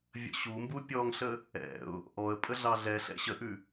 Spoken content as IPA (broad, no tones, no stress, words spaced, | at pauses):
vʲə̰ɕumbu pʲɔŋɬə | ɛ̰ʊ̯ | ʔɔə̯ pʼəɮɑɮɛɬɛ̰ ɕəʔʉ